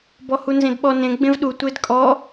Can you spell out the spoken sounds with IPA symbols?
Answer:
b ɔ h u n z ẽ d ɓ ɔ n ẽ ɡ͡b ẽ v ɗ u tʷ e d kʼ ɔ

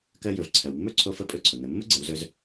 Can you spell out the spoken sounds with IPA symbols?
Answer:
k ɜ˧ j ɵ˩ v ǀʰ ɜ˩ w mː ɵ˥ ǀʰ o˧ f ə˧˥ pʼ ɵ˧ ǀʰ ʊ˩ n̪ ə˩ mː ʊ˥ ɡ͡ǀ ə˩˧ w z ɵ˧ z

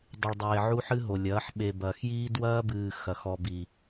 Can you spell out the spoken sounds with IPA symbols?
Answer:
dˤ ɨ˨ ɭ dˤ eː˨ ʕ u˦ ħ ɨ˦ ɦ o˨ lʲ ɐː˨˦ ħ ɓ e˨ b ɐː˨ x j iː˦ d w ɐː˦ b ɨː˨ x ɐ˨ x ɔ˨ b i˨

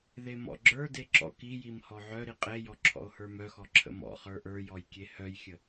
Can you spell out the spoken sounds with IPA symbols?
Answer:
ð e m ɔ̰ ɡ͡ǁ ə˞ d e ǁ ɔ̰ k i j i m h ɔ ʕ œ ɾ i qʼ e j ɔ ǁʰ ɔ̰ o̯ h ə˞ m œ x ɔ ǁʰ ə̰ m ɔ̰ χ ə˞ ʔ ə˞ j ɔ j kʲ e h œ j xʲ ə

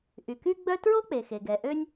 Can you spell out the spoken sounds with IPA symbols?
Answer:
ʔ y˩ k y˥ ɡ͡b œ˥ t ɹ o˥ k͡p e˩ x e˩ ɡ ɛ˩ ʔ ø˥ nʲ

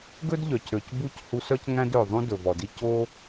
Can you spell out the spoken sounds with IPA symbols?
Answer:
ɡ ɵ˦ d ʎ œ˨ c ɾ ø˨ c b u˦˨ c h u˧ s œ˦ c ŋ æ̃˦ d ø˨ ðˤ ũ˦ d ɵ˨ v ɔ˨ d i˦ c o˦

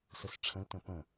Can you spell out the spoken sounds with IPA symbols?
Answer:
s ə s ʈ͡ʂʰ ə̃ l t ə̃ p ə̃

